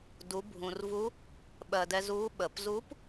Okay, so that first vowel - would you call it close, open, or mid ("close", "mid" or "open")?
close